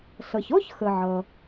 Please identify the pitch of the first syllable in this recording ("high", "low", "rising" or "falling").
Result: low